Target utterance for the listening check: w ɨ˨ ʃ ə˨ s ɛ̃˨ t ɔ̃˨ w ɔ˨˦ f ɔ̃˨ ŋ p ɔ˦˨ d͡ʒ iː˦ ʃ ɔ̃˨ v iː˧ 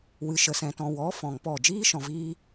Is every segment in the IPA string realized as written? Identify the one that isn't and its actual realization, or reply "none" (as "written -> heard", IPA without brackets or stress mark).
none